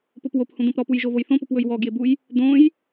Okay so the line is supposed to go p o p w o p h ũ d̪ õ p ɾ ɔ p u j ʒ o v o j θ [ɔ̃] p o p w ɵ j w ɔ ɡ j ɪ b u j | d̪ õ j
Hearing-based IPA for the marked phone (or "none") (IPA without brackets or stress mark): õ